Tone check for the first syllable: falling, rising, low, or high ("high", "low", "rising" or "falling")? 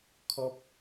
high